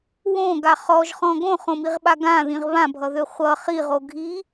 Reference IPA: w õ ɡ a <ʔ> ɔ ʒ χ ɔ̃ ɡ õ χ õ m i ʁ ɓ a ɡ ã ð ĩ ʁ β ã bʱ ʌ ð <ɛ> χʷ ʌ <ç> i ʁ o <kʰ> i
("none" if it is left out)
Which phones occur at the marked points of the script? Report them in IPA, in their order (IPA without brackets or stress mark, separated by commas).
χ, ø, χ, ɡʱ